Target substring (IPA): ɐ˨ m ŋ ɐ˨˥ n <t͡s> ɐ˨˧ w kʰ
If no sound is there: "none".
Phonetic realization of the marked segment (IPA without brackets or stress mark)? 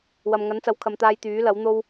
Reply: t͡s